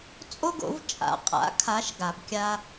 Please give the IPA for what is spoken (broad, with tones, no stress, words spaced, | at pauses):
t͡sʼo˥ɡo̰˩˥v t͡ʃʼa̰˩˥ qʼa̰˩˥kʰa˩˥ʃ ɡa˩b kʲa˧